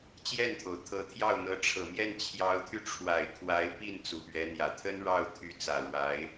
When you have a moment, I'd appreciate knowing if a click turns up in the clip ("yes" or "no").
no